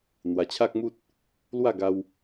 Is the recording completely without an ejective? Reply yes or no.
yes